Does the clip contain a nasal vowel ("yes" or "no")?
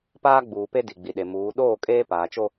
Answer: no